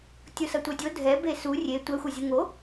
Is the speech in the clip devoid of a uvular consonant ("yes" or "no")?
yes